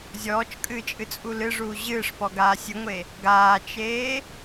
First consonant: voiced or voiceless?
voiced